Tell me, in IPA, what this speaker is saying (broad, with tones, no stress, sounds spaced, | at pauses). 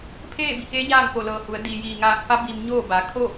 pʰ eː˥˨ b i˧˩ k eː˧˥ ɲ aː˥˨ ŋ k o˧˩ l ɤː˧˩ h u˩˧ ə̯ d i˩ j iː˩ ŋ aː˧˩ k̚ f a˧˥ b i˧ m ɲ oː˥˨ b a˩˧ kʰ o˥˨